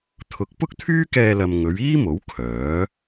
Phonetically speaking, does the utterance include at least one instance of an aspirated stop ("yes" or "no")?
yes